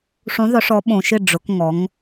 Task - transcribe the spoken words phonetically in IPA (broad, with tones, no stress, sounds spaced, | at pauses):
ʂ ũ˩˧ ðˤ ʊ˩˧ ʂ ɔ˩˧ ɓ õ˩ ʃ ɪ˧˩ ɖ͡ʐ ʊ˩˧ k ŋ ɔ˩˧ ŋ